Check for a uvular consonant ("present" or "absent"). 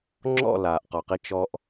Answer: present